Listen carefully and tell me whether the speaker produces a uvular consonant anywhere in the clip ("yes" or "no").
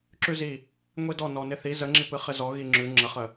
yes